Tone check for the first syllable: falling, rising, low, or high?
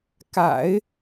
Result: low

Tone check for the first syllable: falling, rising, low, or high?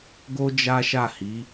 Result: high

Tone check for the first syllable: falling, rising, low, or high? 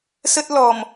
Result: high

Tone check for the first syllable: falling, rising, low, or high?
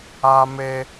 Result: high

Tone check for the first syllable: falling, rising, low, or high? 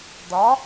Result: rising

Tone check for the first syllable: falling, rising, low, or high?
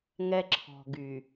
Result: high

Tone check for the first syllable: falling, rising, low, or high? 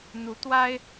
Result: rising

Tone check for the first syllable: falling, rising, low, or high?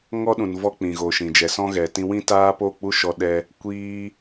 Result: high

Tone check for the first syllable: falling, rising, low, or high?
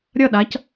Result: falling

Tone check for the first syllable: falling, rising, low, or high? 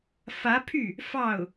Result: rising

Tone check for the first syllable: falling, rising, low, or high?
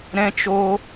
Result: high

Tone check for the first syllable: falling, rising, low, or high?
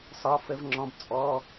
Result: rising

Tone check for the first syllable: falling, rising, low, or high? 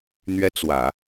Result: high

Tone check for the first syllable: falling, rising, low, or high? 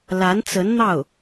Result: rising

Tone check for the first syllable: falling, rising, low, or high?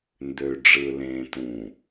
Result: low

